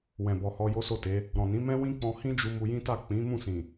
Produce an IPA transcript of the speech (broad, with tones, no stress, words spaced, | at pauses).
wɛ̃˨bɔ˨hɔ˧ jo˦so˦˨te˨˦ | ɾɔ̃˨nĩ˨˦ mɛ̃˦wĩ˦k͡pɔ̃˧ hĩ˦d͡ʒu˧ mu˧jĩ˦ta˦˨ k͡pĩ˨˦ mũ˦˨sĩ˨